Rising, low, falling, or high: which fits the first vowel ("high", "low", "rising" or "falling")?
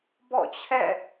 falling